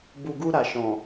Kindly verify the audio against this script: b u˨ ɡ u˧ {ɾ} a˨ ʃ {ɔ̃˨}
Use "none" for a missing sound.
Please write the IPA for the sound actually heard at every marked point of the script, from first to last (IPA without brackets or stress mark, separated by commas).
ɾ, ɔ̃˨